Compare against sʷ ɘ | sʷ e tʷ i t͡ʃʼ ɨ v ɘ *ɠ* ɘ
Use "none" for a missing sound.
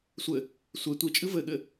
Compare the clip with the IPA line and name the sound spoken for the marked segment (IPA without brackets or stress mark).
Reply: ɠ